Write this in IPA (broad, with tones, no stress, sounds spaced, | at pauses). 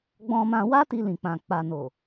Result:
ɡ͡b ɔ̃˧ m ã˧ w a˦ t i˧ l ĩ˨ k͡p ã˨ k͡p a˨ n o˨